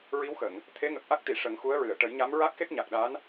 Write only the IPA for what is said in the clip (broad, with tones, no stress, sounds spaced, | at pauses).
ɹ i˧˥ w x ə˨˩˨ ŋ | t̪ʰ e˧˥ ŋ ə˨˩ k̚ ʔ a˦˥ k̚ t̪ i˨˩˨ ʂ ə˨˩˦ ŋ x u˧˥ ə̯ ɹ ɨ˨˩˨ ə̯ ʈ ə˨˩˦ j ɲ a˧˥ m ɹ a˦˥ k̚ x e˦˥ k̚ ɲ a˨˩ k̚ ɗ a˧˥ n